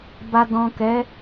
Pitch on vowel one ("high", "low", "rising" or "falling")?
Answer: low